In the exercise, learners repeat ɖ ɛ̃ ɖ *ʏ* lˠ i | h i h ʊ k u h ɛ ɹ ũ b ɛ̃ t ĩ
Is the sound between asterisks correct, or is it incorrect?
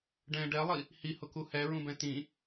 incorrect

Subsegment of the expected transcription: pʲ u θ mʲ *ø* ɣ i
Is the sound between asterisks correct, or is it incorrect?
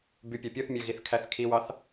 correct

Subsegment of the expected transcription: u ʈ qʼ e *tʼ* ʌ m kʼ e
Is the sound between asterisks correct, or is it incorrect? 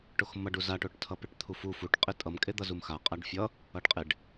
correct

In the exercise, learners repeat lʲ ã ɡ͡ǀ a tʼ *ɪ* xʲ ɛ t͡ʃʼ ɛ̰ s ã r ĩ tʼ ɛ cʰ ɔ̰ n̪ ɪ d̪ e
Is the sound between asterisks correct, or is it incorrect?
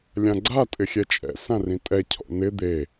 correct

